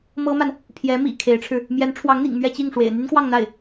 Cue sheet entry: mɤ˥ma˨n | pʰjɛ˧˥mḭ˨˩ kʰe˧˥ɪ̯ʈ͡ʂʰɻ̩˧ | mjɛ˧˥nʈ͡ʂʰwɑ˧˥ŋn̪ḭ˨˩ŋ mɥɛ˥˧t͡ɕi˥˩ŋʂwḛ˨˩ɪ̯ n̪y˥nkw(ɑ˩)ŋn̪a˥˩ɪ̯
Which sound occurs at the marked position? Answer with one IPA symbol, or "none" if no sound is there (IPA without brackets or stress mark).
ɑ˥˧